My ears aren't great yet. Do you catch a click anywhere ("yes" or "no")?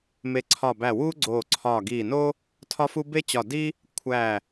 yes